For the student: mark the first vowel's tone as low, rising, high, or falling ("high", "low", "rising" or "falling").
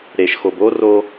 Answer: low